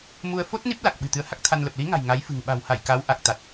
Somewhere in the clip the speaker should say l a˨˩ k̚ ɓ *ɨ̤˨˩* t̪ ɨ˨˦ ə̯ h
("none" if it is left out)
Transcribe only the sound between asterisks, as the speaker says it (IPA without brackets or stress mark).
ɨ̤˨˩